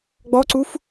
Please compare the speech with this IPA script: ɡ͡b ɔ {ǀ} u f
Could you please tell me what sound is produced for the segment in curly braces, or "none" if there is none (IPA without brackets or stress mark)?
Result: ǀ